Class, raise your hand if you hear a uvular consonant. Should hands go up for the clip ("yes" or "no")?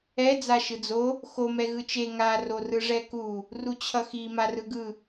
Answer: no